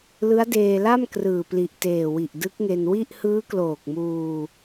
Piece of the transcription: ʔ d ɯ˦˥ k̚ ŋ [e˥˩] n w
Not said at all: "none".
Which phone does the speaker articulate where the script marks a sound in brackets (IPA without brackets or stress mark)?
e˧